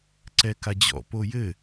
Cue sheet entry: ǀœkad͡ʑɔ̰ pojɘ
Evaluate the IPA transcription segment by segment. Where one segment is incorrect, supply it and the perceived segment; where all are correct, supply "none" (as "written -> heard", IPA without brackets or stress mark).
œ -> ɛ